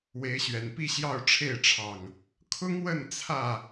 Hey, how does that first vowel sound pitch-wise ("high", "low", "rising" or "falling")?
rising